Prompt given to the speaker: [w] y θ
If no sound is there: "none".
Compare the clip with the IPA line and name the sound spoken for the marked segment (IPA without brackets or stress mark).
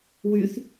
w